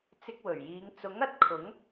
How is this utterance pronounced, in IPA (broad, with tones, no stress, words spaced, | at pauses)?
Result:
t͡sɪ˧k̚wɵ˨˩ɥjiː˨˧ŋ t͡sʊ˨˥ŋɐ˨t̚ kʰʊ˨˥ŋ